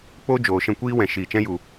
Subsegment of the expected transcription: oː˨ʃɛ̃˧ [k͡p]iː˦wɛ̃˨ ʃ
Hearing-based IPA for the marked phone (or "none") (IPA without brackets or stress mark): kʷ